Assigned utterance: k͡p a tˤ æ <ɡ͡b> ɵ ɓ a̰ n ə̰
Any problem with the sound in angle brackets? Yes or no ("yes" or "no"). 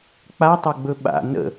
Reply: no